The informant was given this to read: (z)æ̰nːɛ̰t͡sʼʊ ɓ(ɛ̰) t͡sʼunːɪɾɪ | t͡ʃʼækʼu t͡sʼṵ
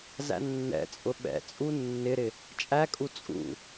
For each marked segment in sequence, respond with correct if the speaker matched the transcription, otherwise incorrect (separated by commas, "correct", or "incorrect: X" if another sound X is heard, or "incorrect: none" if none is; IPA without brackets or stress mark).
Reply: correct, correct